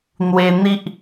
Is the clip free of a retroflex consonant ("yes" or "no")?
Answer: yes